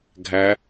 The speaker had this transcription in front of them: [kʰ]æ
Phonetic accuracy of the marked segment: incorrect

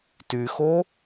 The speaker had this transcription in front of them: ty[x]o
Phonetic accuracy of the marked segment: correct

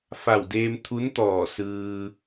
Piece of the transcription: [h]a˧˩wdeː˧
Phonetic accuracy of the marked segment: incorrect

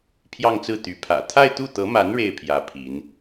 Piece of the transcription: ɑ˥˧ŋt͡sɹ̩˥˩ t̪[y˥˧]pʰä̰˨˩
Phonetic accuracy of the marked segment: incorrect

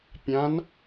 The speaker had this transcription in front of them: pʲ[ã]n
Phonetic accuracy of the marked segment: correct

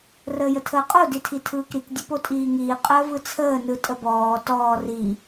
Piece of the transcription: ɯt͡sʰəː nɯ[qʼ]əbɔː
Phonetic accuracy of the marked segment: incorrect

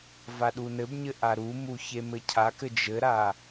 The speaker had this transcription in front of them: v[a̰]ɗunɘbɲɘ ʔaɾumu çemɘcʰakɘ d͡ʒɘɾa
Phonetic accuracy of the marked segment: incorrect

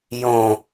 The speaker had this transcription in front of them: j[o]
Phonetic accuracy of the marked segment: incorrect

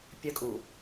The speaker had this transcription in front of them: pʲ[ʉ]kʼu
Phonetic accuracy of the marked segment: incorrect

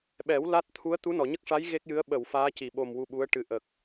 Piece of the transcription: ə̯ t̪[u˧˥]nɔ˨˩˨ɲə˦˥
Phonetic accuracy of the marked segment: correct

